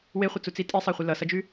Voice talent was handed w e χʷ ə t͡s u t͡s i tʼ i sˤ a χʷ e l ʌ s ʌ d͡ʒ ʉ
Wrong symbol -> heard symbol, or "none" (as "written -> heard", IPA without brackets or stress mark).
none